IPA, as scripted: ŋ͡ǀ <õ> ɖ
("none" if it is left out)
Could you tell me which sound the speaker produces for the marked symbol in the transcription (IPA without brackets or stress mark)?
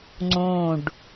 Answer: õ